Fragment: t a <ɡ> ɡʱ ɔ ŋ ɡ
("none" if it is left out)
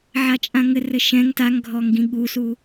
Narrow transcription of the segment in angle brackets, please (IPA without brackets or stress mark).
ŋ